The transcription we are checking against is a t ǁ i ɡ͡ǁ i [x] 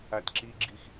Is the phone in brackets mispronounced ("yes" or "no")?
no